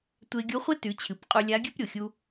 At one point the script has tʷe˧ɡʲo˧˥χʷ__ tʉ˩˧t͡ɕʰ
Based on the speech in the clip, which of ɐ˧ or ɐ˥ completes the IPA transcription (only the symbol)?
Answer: ɐ˥